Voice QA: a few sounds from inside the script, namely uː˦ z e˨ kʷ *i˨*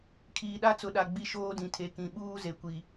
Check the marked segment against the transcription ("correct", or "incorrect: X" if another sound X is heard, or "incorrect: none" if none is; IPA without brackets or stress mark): correct